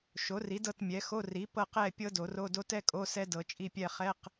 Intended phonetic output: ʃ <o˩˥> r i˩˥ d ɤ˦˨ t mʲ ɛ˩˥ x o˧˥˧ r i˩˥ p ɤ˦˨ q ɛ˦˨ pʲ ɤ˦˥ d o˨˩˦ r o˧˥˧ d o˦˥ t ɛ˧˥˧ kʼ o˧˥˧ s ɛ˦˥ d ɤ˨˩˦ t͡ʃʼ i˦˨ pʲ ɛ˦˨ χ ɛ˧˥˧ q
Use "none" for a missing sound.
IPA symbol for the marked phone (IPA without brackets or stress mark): o˩˥